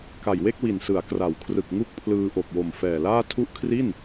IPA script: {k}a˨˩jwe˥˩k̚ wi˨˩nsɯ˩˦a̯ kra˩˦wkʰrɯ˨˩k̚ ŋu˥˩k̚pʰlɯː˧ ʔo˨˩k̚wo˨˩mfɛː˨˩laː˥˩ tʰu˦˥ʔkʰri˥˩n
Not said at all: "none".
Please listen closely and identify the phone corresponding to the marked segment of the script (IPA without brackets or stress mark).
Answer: k